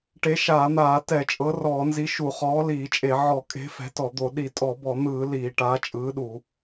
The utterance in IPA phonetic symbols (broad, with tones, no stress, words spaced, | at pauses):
ʈe˨˥ʃaː˧˩˧n̪aː˧˩˧ tɛ˧˩˧t͡ʃʼɤ˨˥rɔː˧˩˧nzi˨˥ ʃu˧˩˧χɔː˨˥liː˧˩˧t͡ʃʼe˧˩˧ ʕɔ˧˩˧kʼe̤˨˥ fɛ̤˨˥tɔ˧˩˧d̪o˧˩˧ ɗi˧˩˧tʼɔ˧˩˧bɔ˧˩˧n̪ɯː˧˩˧ liː˧˩˧ʈaː˨˥t͡ʃʼɯː˨˥ɗu˧˩˧